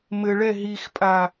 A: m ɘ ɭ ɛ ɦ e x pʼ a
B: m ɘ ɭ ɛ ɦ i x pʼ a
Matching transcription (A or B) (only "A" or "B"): B